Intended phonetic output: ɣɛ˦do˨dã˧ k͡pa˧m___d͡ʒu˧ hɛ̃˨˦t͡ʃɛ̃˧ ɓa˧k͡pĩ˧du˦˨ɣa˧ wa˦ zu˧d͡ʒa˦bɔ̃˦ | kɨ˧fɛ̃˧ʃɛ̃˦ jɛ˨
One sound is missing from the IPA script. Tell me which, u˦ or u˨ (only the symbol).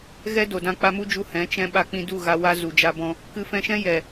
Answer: u˦